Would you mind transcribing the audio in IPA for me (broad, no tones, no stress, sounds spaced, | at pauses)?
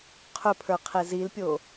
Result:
qʰ ɵ pʰ ə˞ qʰ e z i l pʲ o